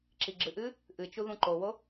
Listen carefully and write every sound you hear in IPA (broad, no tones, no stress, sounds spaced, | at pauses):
ǁ i ɡ͡ǁ ɨ ʔ ɨː | ʔ ɨ t͡ʃ u ð ũ ǃ o w o